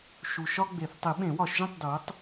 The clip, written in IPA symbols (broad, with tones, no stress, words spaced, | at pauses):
ʃu˨ʃɒ˦ ɡ͡be˨˩˦θ tˤi˨˩˦ɓẽ˨˩˦wɒ˨˩˦ʃʒĩ˥˨tˤ do˨˥tˤ